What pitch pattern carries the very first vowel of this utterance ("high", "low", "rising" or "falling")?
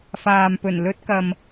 low